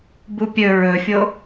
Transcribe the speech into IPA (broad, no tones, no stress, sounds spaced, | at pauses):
b u pʲ ɵ ɹ ɵ fʲ o